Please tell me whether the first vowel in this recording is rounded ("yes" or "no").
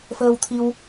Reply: no